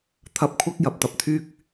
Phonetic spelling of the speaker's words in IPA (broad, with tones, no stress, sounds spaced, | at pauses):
t̪ʰ ɐ˧ p̚ kʷʰ ɐ˥ k̚ j ɐ˧ p̚ t̪ ɐ˧ p̚ t̪ʰ yː˥ k̚